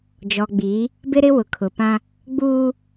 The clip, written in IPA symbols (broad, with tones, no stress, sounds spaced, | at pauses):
d͡ʒ ɔ˨ ɡ͡b iː˨˦ | b ɪ˦ ɾ ɪ˦ w ʊ˨ kʰ ʊ˨ p ã˦ | ɡ͡b uː˦